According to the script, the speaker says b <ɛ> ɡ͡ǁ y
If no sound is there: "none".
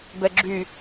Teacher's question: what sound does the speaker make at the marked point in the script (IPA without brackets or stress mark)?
ɛ